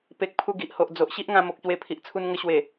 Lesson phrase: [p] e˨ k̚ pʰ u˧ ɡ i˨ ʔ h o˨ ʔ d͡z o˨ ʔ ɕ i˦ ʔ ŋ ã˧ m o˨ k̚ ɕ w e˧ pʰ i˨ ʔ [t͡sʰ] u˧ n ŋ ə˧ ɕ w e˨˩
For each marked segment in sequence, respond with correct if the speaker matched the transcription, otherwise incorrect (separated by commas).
correct, correct